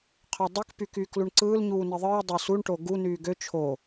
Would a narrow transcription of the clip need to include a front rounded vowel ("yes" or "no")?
yes